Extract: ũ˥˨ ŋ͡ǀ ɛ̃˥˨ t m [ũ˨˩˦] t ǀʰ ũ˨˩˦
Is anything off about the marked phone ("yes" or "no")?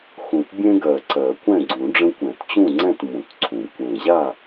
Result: no